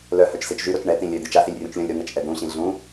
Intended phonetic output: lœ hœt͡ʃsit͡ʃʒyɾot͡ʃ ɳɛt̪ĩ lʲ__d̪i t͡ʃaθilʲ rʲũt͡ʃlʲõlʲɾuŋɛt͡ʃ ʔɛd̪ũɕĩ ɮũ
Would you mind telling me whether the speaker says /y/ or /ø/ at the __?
ø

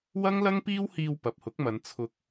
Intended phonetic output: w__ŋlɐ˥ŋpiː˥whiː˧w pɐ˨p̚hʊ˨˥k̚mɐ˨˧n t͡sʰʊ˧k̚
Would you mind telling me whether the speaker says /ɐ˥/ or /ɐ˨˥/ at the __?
ɐ˥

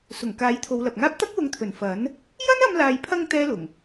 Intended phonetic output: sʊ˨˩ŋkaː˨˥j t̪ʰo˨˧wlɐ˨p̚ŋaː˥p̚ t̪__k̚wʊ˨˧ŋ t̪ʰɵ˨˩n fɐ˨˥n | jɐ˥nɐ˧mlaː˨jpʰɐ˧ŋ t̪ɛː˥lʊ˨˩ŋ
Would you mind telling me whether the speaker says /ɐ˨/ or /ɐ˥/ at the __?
ɐ˥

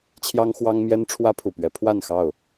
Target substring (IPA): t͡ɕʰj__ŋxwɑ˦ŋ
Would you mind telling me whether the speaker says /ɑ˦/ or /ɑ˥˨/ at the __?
ɑ˦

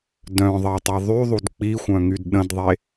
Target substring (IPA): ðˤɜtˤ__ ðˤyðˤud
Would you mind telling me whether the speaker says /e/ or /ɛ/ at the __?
e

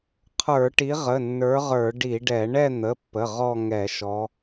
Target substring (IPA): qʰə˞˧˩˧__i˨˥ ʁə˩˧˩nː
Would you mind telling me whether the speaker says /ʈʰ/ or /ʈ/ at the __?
ʈ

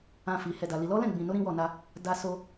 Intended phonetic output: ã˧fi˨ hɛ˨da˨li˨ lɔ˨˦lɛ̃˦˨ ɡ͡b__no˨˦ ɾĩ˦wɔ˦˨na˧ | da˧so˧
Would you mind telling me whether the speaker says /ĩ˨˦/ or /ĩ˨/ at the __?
ĩ˨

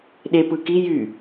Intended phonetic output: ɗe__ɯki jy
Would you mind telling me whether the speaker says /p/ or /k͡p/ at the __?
p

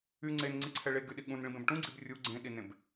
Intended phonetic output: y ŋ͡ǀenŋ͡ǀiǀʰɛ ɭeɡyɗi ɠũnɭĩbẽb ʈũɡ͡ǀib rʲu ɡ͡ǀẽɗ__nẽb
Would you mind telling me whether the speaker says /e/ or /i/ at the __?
i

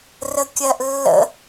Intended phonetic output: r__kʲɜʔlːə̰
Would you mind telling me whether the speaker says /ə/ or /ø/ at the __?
ə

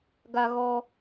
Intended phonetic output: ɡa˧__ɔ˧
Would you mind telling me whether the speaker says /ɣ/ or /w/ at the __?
ɣ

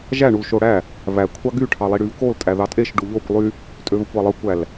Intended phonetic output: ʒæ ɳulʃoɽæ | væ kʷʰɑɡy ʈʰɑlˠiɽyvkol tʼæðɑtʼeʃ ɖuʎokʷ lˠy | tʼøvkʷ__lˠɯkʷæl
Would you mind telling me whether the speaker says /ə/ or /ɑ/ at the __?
ɑ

